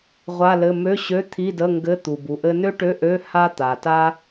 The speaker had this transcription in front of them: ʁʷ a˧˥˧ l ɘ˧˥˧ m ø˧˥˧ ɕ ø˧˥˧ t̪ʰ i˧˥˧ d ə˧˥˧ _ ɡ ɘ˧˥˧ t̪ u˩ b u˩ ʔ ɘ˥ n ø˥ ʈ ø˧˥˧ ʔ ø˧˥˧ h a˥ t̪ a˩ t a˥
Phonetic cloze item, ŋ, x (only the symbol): ŋ